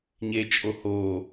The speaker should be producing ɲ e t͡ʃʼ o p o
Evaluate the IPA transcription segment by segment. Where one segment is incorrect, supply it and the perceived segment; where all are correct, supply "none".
p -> h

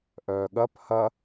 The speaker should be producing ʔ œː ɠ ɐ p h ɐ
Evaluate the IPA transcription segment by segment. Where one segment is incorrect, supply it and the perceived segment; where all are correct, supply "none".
none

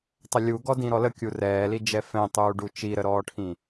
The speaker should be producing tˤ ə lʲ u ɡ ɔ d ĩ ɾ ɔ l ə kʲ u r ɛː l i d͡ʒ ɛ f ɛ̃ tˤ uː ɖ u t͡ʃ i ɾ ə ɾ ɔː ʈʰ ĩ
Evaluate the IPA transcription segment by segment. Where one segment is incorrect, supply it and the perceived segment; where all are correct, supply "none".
none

